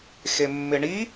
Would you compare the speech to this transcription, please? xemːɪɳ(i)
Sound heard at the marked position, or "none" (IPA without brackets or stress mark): i